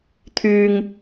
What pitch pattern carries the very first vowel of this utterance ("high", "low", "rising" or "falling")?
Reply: low